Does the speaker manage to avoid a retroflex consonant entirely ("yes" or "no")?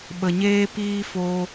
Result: yes